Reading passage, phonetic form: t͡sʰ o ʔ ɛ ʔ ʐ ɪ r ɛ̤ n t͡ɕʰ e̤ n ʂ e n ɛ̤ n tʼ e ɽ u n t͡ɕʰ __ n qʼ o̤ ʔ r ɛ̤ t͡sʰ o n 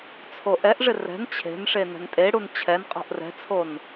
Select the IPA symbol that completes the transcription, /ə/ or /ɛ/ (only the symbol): ɛ